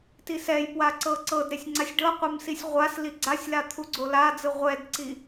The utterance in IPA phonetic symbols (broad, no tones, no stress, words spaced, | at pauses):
tisɛjpwa ǀɤǀɤdɾesʲ ŋ͡ǀasʲɖɤqʷem sisʲʁʷasli ɡ͡ǀasʲla t̪ʰuɡ͡ǀolad͡zɯ ʁʷɛdǀi